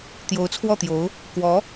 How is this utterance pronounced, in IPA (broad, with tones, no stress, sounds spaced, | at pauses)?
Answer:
t̪ j o˧˥ ʊ̯ t͡sʰ w ɔ˥˩ t̪ j o˧˥ ʊ̯ | k w ɔ˧˥